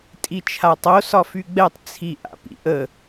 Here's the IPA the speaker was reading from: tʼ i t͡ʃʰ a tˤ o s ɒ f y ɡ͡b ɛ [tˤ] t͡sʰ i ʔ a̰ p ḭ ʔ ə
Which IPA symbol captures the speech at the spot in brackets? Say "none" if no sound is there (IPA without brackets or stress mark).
tˤ